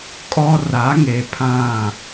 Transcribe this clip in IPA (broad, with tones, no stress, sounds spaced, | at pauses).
kʼ ɔ˦ r a˨˦ ŋ e˨ pʰ ã˦˨